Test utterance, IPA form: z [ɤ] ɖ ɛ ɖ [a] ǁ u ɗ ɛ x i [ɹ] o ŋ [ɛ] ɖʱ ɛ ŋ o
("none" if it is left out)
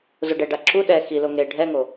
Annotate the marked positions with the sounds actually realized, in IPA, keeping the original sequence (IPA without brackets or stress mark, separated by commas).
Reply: o, a, l, e